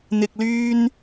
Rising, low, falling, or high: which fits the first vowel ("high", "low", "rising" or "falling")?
low